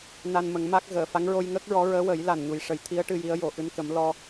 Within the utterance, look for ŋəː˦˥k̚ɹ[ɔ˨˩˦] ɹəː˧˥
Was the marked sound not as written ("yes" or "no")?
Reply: yes